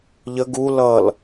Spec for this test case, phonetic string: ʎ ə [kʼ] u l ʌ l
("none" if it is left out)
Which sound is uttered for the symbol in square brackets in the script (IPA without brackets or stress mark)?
ɡ